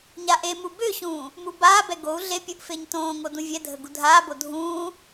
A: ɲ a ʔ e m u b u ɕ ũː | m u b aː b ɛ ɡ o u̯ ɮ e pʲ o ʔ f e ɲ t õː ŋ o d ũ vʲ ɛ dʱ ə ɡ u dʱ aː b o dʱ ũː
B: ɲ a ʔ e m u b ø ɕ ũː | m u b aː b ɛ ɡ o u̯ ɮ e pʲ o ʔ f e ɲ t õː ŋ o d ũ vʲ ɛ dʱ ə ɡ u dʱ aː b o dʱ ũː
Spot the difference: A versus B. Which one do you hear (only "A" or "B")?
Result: B